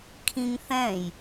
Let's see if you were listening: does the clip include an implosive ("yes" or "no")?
no